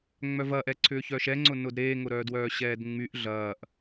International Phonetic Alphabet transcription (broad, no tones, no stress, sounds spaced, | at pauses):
ŋ͡m œ v ɐ ʔ ɛ ǀʰ ʏː ç œ ʃ ɛ ŋ͡ǀ ʊ n ʊ d ɾ eː ŋ ʊ ɾ œː d w œː ɕ ɛː d ŋ͡m y ʔ ɮ ɐː ʔ